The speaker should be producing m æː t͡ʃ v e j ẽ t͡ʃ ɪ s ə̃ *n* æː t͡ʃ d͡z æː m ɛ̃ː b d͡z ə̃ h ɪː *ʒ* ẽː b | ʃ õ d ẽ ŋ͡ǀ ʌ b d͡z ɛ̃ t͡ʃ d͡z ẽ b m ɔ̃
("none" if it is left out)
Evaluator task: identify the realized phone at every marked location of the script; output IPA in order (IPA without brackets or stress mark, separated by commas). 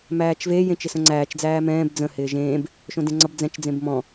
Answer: ŋ͡ǀ, ʒ